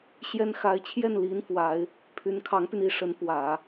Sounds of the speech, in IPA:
ɕ j ɛ˥ n x a˧˥ ɪ̯ t͡ɕʰ j ɛ˥˩ n l i˥ n f w a˧˥ ɪ̯ | pʰ y˧˥ n kʰ ɑ˧˥ ŋ p y˧ n i˧˥ ʂ ə˧˥ n p w ä˨˩˦

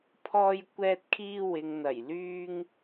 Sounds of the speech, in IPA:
pʰ ɔː˧ j kʷ ɛː˧ t̚ kʰ iː˧ w ɪ˨ ŋ n̪ ɐ˨˩ j l yː˥ ŋ

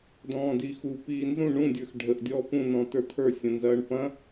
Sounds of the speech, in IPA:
d ɔ̃ː d i x u p iː n z ũ ɳ ũ dʲ ə˞ x ɖʱ ə ʔ dʲ ɔː p ũ n ɔ̃ t ə˞ t̪ʰ ə˞ sʲ ɐ̃ n z ɐː ɳ p ɐ̃

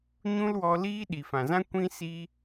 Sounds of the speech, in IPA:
ɲ ũ˦ l w ɔ˧ l iː˦ ɗ i˨ f ã˨ z ã˦ kʷ ĩ˦ s i˦

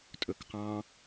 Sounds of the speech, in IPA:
tʼ ɵ k q ɑ̃

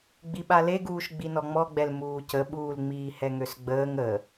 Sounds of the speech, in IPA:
ɡ͡b i ɓ a l e ɡ uː ʃ ɡ͡b i n ɔ ŋ͡m ɔ ɡ͡b ɛ l m uː c ə ɓ uː l ŋ͡m iː h ɛ ŋ ø s ɡ͡b əː ŋ ə

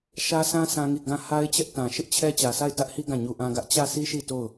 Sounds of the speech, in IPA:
ʃ ä˦ s ã˦ sʰ ã˦ ŋ i˦˨ ɡ ã˦˨ h a˦ ɪ̯ t͡ɕ ɛ˦ ʔ t ã˨ ʃ ɪ˦ ʔ t͡ɕʰ ɛ˦ t͡ɕ ä˨ s a˦˨ ɪ̯ t ä˦ ʔ h i˦ ɡ ã˦˨ ɲ u˦ ʔ ã˦ ɡ ä˦ ʔ t͡ɕ ä˦˨ s i˦ ʃ i˦˨ t o˦˨ ʊ̯

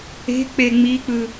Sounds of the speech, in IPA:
e̤ k͡p e ŋ͡m i k͡p ɯ

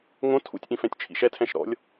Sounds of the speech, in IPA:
ŋ õ tʰ ṵ tʲ ʔ ĩ f ɛ̃ tʲ t͡ʃʰ ḭ ʃ ɛ tʰ ɛ̃ ʃ ɾ ɔ̰ lʲ

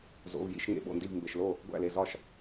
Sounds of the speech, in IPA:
z o̰˩˧˩ v j ḭ˥˩ ʃ ŋ ḛ˩˧˩ ɓ o̰˥˩ n d i˥˩ v m b e˩ ʃ l o˥˩ | ɡʷ æ̰˥˩ l e˩˧˩ z ɒ˥˩ ʃ

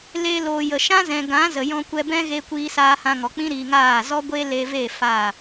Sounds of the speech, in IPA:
l e˧ l oː˨ j ə˨ ʃ ã˦ z ɛ̃˨ ɡ ã˨˦ z ə˨ j ɔ̃˧ kʷ ɛ˧ b ɛ̃˦ ɣ e˧ kʷ iː˧ s aː˧ h ã˧ ŋ ɔ˨ k͡p ĩ˦ ɾ i˧ ŋ aː˦˨ z ɔ˦ ɡʷ e˦ l e˧ v e˦˨ f a˦˨

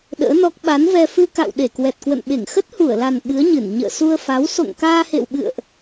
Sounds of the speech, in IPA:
ɗ ə̰ː˧˥ n ɔ˦˥ k̚ ɓ a˨˦ n v ɛ˧ f ɨ˧ k a̰˧˨ w ɗ e˧˩ k w ɛ˨˩ t̚ k w ə̰˧˨ n ɓ e˧˩ ŋ x ə˦˥ t̚ h u˧˩ ə̯ l a˨˩ n ɓ ɨ˨˦ ə̯ ɲ ɨ˧˩ n ɲ ə̰ː˧˨ s u˧ ə̯ f a˨˦ w s o̰˧˨ ŋ k aː˧ h ḛ˧˨ w ɓ ɨ̰˧˨ ə̯ ʔ

